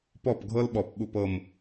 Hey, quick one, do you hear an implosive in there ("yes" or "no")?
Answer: yes